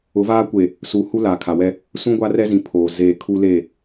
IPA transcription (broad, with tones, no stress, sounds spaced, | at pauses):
ʊ˨˦ v aː˦ kʷ e˨ | s uː˨ h u˦ l aː˨ kʰ a˨ w ɛ˦ | s ũ˦ ɡʷ a˦ r ɛ˦ z ĩ˨ pʰ oː˨ z eː˨ kʰ u˦ l e˦˨